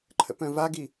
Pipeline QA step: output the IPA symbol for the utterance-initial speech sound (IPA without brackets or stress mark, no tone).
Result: ǃʰ